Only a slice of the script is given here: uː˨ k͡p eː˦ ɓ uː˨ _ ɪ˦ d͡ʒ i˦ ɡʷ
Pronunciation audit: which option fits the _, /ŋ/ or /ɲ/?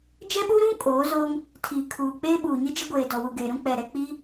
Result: ɲ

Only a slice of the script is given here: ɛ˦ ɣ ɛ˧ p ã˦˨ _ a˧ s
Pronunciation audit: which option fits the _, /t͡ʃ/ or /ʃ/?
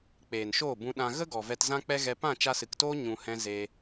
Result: t͡ʃ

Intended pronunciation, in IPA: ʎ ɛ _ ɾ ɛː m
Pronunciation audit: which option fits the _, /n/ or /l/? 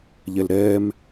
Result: l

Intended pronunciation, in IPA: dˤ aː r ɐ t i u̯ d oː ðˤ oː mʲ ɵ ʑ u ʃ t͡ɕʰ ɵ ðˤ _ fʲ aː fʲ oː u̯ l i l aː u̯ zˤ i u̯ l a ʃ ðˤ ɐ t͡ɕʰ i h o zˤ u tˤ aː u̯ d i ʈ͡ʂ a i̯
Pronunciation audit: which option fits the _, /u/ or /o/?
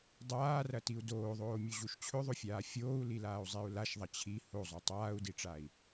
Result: o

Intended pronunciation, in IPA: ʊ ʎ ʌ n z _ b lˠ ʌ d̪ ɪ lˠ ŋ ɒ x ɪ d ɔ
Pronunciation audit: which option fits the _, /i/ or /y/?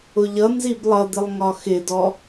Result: i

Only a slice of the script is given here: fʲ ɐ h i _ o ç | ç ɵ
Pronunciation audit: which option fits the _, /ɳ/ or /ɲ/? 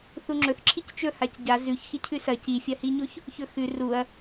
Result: ɲ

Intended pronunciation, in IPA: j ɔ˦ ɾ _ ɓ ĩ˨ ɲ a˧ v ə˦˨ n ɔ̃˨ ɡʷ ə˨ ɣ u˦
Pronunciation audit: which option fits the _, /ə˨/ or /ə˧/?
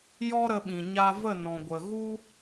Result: ə˧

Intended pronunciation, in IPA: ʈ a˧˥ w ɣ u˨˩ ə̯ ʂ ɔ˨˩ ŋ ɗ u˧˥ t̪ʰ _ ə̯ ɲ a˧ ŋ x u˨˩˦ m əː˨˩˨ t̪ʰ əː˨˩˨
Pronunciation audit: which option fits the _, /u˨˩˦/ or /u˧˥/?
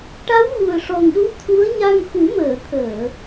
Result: u˧˥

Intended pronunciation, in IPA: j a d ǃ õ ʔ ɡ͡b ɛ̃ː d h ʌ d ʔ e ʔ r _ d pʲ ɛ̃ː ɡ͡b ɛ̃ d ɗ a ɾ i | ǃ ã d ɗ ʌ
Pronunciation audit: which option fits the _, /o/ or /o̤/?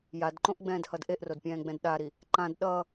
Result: o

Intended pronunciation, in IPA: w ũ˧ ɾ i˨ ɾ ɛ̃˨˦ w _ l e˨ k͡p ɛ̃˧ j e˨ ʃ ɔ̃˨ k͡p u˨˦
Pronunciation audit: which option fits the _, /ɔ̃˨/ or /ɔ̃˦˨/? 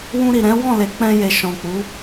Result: ɔ̃˦˨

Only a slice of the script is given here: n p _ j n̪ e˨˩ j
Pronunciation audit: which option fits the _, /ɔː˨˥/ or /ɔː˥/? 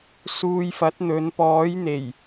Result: ɔː˨˥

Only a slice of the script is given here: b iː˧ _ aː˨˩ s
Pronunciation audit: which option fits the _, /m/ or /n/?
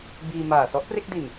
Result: m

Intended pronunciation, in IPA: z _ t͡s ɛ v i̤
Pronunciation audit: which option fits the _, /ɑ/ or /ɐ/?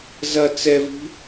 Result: ɐ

